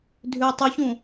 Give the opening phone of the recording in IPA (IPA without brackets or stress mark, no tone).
dʱ